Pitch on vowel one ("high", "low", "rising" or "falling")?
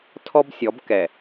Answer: high